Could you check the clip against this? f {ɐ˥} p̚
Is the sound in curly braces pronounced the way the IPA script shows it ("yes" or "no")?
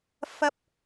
yes